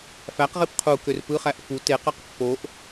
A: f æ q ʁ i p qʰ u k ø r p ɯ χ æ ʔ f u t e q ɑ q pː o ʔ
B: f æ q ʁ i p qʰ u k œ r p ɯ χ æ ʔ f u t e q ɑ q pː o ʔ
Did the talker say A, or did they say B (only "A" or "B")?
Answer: A